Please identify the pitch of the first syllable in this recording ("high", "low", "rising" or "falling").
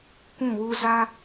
falling